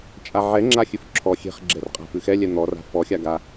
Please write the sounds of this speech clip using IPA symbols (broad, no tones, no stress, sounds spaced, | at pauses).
t͡ʃʼ a ʕ ɛ ŋ͡ǁ a xʲ ʉ f ǁʰ ɔ xʲ e̤ χ ɡ͡ǁ ɛ r qʼ a̤ f ʉ x ɛ lʲ ɛ n̪ ɔ r a̤ f ɔ xʲ a ɡ a